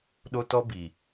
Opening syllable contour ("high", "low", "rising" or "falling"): high